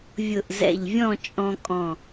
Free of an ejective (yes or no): no